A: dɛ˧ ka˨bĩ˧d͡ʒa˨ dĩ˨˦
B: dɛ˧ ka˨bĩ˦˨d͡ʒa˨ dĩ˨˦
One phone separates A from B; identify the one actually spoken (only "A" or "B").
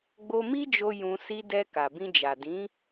A